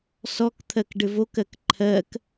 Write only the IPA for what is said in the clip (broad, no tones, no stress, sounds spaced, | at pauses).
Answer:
s ɔ k t̪ʰ ɜ k ɖ ɘ v o k ɜ k ǃʰ ɜ k